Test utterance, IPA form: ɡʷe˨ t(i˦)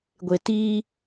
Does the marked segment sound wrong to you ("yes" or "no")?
yes